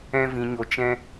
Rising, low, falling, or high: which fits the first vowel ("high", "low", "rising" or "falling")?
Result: high